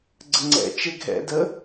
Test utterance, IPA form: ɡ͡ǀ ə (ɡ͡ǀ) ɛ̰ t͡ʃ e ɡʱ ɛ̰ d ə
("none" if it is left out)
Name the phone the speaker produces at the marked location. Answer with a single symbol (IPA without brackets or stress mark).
ŋ͡ǀ